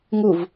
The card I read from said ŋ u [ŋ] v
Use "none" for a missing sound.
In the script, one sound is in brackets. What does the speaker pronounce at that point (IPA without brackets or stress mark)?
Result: none